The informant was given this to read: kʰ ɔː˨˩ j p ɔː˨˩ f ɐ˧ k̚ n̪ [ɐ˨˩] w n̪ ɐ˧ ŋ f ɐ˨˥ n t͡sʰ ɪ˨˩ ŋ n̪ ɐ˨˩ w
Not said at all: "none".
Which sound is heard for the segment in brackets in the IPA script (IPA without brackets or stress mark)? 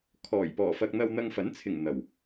ɐ˧